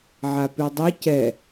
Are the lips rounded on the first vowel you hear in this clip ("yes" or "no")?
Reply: no